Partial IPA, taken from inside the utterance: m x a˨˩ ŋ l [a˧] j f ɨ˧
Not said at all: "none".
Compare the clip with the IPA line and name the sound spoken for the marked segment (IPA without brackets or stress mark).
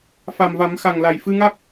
a˨˩